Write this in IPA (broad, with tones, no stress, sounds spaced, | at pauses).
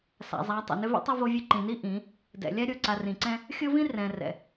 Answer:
s a̰˨ zˤ a˨˦ tˤ ɛ̰˨ n ʏ˦ v ḭ˦ tˤ ʌ˦ v o˦ vʲ ɨ˦ ǃ ĩ˨ n i˦ ʔ ĩ˨˦ | d ɛ̰˨ lʲ a˦ ɾʲ o˨ ǀ a˨ r ĩ˨ ǀ ɛ̃˦ | xʲ o˦ v ĩ˦ r ɛ̃˨ r ɛ̰˨